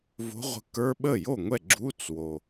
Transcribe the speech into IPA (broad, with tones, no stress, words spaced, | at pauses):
vo̤˧˥ʁʷə̤˧˥kə˞˧˥˧ ɓə˥˩jo˥˩ŋʷɛ˥˩ ɡ͡ǁu˧˥˧t͡s wo˨˩